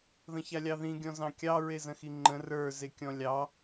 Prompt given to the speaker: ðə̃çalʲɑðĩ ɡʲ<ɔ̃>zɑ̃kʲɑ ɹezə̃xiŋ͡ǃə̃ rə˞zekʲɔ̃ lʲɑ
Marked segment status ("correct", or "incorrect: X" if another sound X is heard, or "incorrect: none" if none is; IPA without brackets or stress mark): correct